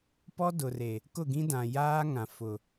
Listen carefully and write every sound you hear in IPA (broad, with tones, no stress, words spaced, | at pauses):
pɔ˦dʊ˨re˨ | kʊ˦˨ɡĩ˦ dã˨jaː˦ŋã˨ fʊ˨